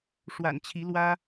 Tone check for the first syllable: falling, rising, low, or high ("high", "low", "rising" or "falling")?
low